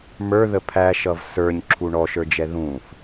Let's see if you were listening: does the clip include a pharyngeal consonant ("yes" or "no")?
no